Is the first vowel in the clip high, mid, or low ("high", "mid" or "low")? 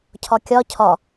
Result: low